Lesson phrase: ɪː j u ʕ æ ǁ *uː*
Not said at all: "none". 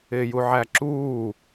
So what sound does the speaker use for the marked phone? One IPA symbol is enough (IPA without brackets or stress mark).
uː